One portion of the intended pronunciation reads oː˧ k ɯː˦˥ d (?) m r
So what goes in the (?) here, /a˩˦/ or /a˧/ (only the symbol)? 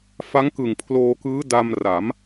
a˧